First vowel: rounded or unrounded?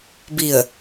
unrounded